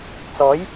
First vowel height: mid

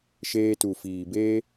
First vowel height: mid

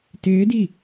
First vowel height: high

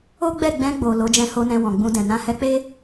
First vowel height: mid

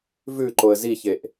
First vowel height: high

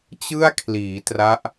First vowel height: high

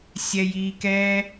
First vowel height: mid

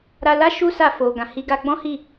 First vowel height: low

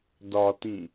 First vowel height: low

